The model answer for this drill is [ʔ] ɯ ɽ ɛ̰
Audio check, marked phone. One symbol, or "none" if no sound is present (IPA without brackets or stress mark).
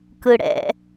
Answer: k